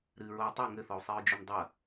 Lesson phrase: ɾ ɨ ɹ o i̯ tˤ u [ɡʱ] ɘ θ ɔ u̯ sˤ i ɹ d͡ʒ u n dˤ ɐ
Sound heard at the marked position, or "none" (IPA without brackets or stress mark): ŋ